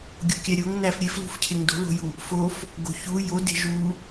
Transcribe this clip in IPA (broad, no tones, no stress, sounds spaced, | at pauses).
ɡʲ o kʲ æ ɾʲ o ŋ n æ f ɾʲ e f l ṳ f cʰ e ŋ d o̤ l o̤ j u | f o f | ɡ o̤ ç u j o d e̤ ʒ u